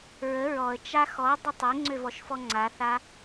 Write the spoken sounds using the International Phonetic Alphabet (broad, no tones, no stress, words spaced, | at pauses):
ɹə ɹɔə̯t͡ʃa xɔdˤə tˤeŋ͡ǀøvɔʃfɔ ŋ͡ǀaθa